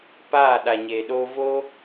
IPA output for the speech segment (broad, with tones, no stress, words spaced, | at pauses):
paː˦˨ ɗa˨ɲeː˨ɗoː˧vo˦